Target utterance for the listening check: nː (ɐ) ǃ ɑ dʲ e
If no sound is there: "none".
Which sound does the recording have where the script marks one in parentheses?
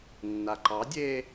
a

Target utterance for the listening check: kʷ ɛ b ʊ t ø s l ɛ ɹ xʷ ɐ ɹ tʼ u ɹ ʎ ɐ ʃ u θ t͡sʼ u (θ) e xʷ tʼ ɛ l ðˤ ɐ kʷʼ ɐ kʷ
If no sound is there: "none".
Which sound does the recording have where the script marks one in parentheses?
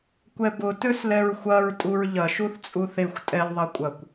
θ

